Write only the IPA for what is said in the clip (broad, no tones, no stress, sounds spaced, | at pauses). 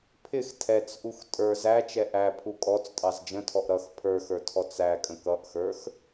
pʰ ɪ x tʰ ɛ t͡s ʔ u x tʼ ə˞ z æ t͡ʃ ɛ ʔ æ pʰ u kʼ ɔ t͡s tʼ ɑ z d͡ʒ ə̃ tʰ ɔ ʔ ɾ ʌ x pʰ ə˞ x ə˞ tʰ ɔ t͡s æ kʼ ə̃ k ʌ ʔ x ə˞ x